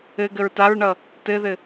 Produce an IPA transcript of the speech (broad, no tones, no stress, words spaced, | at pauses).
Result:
ɘɡəɹ taɹɳʌ | tɘðɘ